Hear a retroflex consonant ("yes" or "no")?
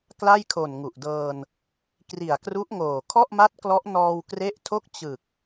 no